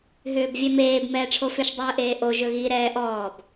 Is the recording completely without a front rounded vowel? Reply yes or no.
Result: no